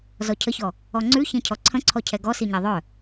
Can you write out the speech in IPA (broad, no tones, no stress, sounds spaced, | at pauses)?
z ɔ cʰ ə ç ɔ | ɔ ŋ͡ǀ ʉ ç ẽ cʰ ɔ ǀʰ ə̃ ǀʰ ɔ cʰ ɛ ɡ ɔ s i ɲ ɛ ðˤ œ